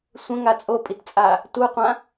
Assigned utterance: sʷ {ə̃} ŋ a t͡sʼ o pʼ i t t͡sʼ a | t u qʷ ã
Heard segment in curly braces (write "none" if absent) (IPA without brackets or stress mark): ə̃